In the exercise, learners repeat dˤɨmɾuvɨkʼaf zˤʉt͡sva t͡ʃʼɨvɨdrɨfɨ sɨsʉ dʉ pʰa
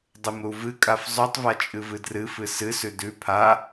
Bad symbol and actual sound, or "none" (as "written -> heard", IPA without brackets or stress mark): t͡s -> tˤ